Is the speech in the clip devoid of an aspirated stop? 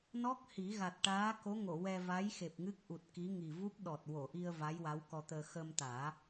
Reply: yes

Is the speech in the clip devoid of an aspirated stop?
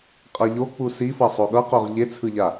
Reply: no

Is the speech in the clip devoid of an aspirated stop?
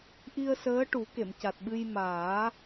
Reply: yes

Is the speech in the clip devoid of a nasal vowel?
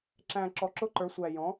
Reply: no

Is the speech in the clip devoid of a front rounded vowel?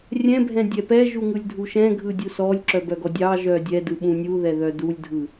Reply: no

